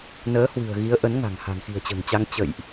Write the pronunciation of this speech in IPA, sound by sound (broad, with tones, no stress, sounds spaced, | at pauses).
n əː˨˦ h w ɨ̤˨˩ ə̯ ɣ i˨˦ ə̯ ʔ ə˨˦ n ŋ a̤˨˩ ŋ h a̤˨˩ n x i̤˨˩ ə̯ t͡ɕ ə̤ː˨˩ ŋ t͡ɕ a˧ ŋ t͡ɕ ə̰˧˨ j ʔ